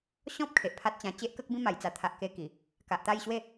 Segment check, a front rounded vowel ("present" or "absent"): absent